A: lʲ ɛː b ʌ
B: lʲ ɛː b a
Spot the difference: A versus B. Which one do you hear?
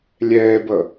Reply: A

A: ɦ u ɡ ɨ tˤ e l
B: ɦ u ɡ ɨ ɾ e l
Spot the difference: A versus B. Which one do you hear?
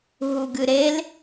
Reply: B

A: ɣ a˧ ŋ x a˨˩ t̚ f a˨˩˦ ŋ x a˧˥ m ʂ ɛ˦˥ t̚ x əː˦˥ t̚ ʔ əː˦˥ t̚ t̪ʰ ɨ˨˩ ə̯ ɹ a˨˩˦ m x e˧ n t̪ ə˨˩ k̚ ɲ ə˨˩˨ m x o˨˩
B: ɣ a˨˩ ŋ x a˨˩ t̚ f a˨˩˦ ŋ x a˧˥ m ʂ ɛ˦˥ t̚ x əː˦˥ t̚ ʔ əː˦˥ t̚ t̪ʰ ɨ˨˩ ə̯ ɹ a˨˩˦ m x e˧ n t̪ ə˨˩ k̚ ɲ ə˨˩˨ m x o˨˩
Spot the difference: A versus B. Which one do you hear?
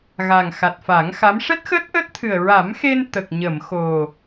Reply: B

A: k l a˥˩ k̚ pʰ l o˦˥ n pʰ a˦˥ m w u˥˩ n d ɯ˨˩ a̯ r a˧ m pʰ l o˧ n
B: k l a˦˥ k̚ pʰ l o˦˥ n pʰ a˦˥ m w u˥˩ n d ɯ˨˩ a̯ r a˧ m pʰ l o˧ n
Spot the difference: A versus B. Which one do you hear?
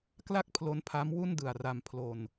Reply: A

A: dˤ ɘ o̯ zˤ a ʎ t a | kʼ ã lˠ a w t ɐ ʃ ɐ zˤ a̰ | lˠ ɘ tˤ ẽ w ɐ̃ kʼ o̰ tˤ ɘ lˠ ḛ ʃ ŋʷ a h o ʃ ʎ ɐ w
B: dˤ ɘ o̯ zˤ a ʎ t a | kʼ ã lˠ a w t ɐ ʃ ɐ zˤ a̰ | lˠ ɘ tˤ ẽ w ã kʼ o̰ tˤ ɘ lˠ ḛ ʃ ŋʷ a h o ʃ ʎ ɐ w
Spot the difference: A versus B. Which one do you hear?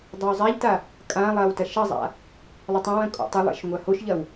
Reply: A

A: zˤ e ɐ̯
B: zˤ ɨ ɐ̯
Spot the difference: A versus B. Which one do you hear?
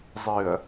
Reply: B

